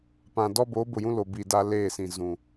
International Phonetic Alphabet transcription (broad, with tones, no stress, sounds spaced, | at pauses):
p ã˨ d ɔ˦ b o˨˦ b ʊ˨ j ũ˦ l o˨ b i˨ d a˦ l eː˦˨ s ĩ˨ z ũ˨